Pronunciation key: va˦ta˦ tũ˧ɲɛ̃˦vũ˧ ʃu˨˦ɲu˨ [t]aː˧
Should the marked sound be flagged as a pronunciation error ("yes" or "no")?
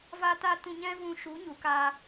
yes